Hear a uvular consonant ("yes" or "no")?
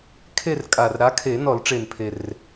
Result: no